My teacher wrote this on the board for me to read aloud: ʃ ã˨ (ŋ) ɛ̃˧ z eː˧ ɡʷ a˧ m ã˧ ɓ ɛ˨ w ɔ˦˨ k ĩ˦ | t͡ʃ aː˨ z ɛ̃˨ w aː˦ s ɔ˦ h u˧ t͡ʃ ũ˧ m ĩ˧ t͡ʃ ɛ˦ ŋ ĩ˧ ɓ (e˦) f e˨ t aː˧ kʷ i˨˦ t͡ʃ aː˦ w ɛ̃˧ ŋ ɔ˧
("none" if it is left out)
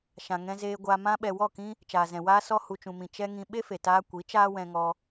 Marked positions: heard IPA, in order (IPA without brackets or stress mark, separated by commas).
ŋ, e˦